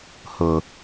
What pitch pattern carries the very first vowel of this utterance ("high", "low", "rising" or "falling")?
low